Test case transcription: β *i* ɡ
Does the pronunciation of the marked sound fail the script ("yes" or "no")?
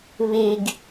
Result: no